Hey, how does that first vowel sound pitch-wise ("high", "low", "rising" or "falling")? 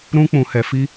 high